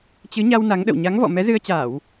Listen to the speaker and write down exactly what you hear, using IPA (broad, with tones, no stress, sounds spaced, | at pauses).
t͡ɕ ɨ˨˦ ɲ a˧ w n a˨˦ ŋ ɗ ə̰˧˨ w ɲ a˨˦ ŋ v ɔ̰˧˨ m ɛ˨˦ z ɨ˧ ə̯ t͡ɕ aː˧˩˨ w